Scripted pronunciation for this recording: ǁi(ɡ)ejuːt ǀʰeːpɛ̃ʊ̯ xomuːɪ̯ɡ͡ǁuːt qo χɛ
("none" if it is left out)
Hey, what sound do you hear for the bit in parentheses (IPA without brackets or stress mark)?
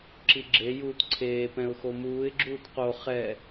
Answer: ɡ͡ǁ